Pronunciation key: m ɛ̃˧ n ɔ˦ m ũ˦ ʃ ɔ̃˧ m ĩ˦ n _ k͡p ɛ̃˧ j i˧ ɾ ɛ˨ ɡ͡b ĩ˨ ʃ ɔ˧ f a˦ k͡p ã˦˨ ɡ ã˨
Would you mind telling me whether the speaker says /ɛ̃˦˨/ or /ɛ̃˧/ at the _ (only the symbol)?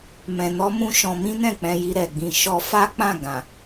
ɛ̃˦˨